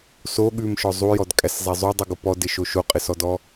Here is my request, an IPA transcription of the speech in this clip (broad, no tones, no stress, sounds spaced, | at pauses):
s o ɠ ʉ m ʃ ɔ zˤ u j ɔ d kʼ æ s zˤ æ zˤ u dˤ ʉ ɡ o p ɔ d ɪ ʃ o ʃ o qʼ ɪ s ɔ d ɔ